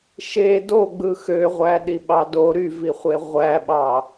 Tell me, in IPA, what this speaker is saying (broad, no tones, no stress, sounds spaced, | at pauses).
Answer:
ʃ e d o ɡ͡b ɯ x ø ʁʷ æ ɗ i ɓ ɑ d o ɾ y v i χʷ e ʁʷ æ ɓ ɑ